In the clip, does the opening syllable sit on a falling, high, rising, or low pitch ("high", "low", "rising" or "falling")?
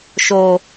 low